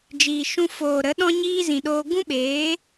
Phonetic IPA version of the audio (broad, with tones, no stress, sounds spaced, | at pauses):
d͡ʒ iː˨ ʃ ũ˧ f oː˨ ɾ ə˨˦ ɗ ɔ̃˦ ɲ iː˦ z ĩ˨ ɗ oː˧ ɡ ũ˦ ɓ eː˨˦